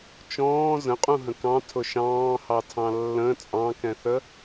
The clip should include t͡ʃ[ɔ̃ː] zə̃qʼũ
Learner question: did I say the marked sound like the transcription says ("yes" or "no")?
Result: yes